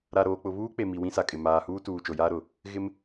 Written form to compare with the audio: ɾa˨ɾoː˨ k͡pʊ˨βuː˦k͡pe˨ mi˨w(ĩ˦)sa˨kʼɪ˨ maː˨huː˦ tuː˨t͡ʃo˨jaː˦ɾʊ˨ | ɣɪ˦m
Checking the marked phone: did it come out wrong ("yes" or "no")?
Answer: no